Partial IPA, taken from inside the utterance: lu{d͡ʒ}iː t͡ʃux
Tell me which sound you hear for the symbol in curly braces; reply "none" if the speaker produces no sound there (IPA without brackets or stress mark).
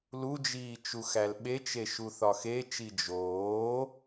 d͡ʒ